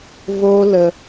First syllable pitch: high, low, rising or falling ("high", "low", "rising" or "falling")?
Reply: high